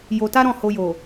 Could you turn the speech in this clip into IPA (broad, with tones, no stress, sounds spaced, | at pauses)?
j o˧ t a˦ ɾ ɔ̃˦˨ h o˧ j o˨